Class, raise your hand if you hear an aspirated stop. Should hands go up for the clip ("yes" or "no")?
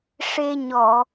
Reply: no